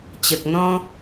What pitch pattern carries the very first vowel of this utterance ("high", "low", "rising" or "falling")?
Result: low